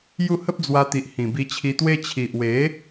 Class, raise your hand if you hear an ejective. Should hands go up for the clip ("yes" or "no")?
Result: no